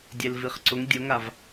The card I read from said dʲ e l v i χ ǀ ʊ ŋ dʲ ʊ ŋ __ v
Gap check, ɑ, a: a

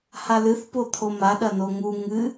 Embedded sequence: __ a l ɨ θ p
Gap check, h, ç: h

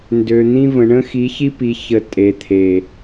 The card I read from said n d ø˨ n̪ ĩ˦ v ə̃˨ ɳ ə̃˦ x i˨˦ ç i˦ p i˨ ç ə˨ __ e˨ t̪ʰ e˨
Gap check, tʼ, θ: tʼ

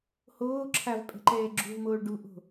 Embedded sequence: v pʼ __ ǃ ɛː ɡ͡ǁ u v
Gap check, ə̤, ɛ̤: ɛ̤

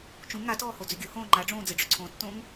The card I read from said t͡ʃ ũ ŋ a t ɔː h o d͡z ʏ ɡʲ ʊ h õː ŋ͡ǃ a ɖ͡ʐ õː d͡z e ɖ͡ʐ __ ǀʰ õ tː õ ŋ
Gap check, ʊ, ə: ʊ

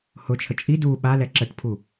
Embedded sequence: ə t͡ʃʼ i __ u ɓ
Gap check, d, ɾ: d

